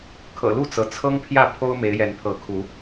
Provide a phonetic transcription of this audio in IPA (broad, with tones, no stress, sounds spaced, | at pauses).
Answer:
kʰ ɤ̰˨˩ l u˥˨ t͡s ɤ˩ t͡sʰ ɤ˦ ŋ pʰ j ä˥˨ pʰ o˦ ʊ̯ m e˨˦ ɪ̯ j ɛ˨˦ n pʰ ɤ˨˦ kʰ u˨˦